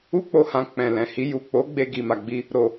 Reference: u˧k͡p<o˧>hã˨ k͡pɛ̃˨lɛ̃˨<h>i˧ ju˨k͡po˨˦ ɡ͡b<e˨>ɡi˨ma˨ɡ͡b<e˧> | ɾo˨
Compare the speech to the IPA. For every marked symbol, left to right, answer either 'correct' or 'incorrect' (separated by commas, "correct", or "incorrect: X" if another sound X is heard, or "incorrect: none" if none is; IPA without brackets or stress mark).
incorrect: o˨, correct, incorrect: e˧, incorrect: i˧